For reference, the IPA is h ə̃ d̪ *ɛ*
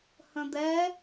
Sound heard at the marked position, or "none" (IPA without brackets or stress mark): ɛ